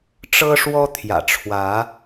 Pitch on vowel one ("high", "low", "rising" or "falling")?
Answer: high